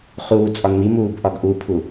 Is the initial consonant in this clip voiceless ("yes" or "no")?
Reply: yes